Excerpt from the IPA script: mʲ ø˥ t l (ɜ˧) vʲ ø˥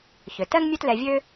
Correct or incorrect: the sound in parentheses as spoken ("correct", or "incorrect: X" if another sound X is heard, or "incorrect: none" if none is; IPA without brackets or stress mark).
incorrect: ɛ˧